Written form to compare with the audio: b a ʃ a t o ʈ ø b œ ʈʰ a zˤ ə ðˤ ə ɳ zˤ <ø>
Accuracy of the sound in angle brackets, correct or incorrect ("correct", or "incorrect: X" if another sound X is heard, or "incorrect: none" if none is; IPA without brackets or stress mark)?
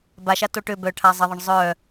incorrect: œ